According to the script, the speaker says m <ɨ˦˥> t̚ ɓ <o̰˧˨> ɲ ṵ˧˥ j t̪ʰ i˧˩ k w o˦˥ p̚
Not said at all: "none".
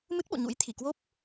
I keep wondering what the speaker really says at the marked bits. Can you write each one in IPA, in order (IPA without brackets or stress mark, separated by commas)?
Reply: ɨ˦˥, o̰˧˨